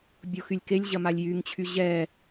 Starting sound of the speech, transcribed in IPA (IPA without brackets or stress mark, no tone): bʲ